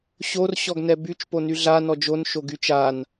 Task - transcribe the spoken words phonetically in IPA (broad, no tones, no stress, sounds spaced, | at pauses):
ɕ o r ɕ ɔ ɡ n ɛ b y t͡ʃ p o n y ɮ a n ɔ d͡ʒ o n ʃ o ɡ y t͡ʃ a n